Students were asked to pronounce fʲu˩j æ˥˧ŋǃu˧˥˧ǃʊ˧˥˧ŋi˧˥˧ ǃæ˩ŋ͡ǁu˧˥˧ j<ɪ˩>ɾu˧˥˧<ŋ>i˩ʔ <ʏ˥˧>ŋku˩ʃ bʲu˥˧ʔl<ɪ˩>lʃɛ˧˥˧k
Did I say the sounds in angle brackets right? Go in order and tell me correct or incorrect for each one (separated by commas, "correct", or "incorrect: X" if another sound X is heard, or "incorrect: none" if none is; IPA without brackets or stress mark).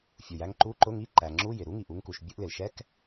correct, correct, incorrect: u˥˧, correct